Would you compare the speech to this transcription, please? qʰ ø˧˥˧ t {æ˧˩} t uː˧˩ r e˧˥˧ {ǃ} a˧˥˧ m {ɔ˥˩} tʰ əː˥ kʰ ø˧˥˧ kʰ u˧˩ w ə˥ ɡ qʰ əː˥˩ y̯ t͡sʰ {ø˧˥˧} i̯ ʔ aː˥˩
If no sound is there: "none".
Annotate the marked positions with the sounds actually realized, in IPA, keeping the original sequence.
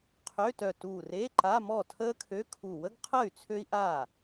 œ˧˩, ǃ, ɔ˥˩, ø˥

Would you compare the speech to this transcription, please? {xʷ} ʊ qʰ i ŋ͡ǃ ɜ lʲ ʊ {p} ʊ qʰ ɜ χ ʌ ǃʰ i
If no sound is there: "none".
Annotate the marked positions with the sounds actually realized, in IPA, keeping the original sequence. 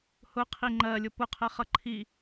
h, p

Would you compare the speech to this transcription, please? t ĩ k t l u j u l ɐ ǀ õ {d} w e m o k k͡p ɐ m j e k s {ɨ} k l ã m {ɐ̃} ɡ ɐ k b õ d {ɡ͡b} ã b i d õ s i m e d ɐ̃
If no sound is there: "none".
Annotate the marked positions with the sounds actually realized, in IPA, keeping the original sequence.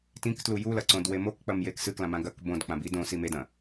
d, ɨ, ã, k͡p

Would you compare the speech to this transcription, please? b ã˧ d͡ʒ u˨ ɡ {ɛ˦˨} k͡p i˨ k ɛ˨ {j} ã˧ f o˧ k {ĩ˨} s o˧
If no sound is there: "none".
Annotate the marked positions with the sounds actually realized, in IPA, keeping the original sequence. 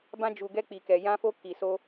ɛ˧, j, i˨

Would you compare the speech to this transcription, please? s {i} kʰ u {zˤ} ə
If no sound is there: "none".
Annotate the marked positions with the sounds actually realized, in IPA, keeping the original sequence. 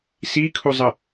i, zˤ

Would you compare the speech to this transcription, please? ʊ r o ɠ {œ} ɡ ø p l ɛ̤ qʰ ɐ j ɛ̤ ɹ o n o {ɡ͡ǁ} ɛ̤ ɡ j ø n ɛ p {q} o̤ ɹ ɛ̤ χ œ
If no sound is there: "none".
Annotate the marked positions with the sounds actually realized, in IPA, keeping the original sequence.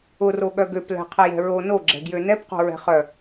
œ, ɡ͡ǁ, q

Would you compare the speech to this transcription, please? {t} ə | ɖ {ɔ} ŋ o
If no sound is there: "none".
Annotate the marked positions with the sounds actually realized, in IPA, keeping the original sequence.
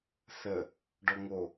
θ, ɔ

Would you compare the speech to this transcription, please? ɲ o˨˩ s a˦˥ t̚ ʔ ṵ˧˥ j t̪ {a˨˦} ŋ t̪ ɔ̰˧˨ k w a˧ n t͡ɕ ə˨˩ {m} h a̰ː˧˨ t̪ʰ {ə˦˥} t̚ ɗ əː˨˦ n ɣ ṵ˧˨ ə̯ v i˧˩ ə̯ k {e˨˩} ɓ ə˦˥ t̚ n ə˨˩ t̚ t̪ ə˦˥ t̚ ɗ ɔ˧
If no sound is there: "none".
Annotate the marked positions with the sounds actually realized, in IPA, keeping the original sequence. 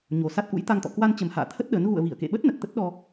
a˧, m, ə˦˥, ḛ˧˨

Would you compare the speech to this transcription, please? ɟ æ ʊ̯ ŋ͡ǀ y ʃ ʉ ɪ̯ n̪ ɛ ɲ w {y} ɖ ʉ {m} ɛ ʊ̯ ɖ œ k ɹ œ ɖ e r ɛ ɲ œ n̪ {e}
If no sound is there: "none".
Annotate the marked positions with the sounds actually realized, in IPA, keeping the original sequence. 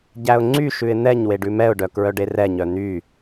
e, m, y

